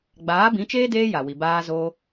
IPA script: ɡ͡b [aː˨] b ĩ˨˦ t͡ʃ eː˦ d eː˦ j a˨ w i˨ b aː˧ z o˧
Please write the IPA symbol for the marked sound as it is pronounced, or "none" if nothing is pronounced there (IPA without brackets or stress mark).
aː˨˦